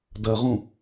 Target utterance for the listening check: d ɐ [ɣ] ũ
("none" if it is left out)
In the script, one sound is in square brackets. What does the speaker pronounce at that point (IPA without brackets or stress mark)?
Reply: ʁ